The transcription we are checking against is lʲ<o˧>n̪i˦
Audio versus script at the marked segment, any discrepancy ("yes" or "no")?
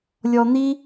yes